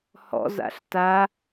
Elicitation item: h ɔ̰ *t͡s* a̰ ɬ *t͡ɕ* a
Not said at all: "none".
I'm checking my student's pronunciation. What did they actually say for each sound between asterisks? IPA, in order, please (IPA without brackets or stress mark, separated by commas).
z, t